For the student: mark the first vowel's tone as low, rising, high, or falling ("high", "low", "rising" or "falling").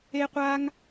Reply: high